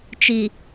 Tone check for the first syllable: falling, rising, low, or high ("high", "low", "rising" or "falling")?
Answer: low